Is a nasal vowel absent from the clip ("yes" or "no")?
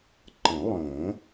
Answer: no